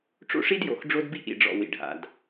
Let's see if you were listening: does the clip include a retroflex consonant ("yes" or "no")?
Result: yes